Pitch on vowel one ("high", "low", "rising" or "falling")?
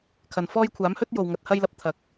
low